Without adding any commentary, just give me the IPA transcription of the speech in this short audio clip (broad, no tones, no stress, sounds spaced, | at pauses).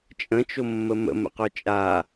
t͡ʃʼ ə̃ t͡ʃ o mː ə m ə̰ m ə̰ q œ t͡ʃʼ a